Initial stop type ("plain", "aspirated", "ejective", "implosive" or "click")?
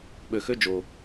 implosive